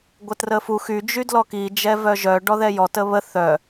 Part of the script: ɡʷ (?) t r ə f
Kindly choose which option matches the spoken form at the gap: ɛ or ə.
ə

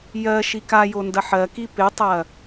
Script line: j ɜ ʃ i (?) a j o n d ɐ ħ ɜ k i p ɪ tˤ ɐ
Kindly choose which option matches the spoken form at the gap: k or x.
k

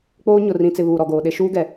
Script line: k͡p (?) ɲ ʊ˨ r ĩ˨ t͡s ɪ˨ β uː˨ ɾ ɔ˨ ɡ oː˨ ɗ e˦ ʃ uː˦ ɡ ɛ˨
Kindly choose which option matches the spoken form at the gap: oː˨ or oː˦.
oː˦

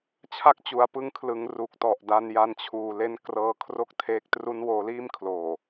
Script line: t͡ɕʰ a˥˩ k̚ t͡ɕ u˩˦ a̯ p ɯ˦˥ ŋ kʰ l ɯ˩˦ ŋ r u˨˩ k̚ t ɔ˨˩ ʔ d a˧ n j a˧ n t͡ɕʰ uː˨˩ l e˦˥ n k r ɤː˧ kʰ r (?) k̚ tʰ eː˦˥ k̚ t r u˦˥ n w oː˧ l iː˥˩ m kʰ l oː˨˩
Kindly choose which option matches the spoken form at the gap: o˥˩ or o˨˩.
o˥˩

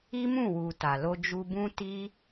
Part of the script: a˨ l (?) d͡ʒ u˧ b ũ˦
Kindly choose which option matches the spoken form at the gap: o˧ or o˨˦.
o˧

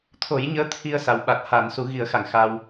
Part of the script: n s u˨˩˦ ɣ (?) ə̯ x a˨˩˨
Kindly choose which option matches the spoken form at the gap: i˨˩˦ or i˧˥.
i˨˩˦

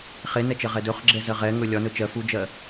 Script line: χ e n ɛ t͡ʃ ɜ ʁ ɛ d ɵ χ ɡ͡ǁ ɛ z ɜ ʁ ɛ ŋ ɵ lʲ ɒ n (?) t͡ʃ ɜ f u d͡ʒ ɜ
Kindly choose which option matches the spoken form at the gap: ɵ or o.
ɵ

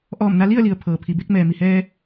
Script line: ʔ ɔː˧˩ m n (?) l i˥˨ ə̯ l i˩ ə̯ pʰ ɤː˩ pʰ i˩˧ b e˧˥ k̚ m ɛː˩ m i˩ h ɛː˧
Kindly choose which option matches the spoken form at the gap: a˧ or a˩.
a˧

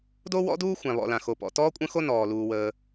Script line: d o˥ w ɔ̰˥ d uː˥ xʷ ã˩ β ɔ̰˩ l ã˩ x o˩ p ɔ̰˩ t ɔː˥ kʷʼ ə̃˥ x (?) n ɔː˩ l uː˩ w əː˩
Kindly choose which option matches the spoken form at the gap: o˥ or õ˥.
o˥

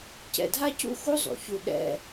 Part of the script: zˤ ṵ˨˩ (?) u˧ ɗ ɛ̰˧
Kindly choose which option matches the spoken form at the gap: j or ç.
ç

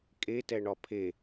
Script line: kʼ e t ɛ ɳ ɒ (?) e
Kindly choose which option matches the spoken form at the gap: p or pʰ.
pʰ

